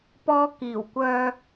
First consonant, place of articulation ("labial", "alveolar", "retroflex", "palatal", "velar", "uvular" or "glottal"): labial